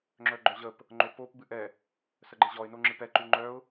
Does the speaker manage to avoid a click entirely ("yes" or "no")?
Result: no